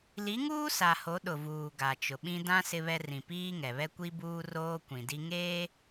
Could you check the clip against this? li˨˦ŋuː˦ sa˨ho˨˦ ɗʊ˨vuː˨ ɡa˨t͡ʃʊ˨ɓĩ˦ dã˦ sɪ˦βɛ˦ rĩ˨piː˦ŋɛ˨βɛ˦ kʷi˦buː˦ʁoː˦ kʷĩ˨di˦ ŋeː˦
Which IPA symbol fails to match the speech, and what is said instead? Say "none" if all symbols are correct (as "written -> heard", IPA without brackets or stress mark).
ʁ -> r